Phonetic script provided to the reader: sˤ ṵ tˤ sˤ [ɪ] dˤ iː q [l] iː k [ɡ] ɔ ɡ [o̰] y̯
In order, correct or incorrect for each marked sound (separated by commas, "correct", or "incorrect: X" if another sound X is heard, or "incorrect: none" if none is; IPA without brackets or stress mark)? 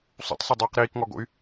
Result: correct, incorrect: ɾ, incorrect: ŋ, correct